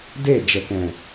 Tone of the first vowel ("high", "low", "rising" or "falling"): falling